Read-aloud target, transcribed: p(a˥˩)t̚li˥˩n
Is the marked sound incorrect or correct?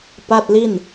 correct